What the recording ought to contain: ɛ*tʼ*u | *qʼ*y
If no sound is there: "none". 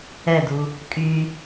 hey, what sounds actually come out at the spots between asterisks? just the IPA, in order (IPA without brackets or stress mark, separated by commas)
d, kʼ